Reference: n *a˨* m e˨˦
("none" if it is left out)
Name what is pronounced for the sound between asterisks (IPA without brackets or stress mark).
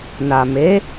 a˨